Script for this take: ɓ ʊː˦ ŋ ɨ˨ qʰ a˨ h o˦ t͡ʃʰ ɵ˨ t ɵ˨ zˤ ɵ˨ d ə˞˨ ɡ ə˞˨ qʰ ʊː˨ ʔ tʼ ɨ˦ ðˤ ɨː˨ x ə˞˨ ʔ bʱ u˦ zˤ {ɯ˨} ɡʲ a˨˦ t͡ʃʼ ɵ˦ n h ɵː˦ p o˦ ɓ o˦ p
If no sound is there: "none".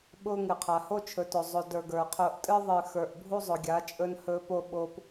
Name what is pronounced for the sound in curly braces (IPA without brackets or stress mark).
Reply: ʊ˨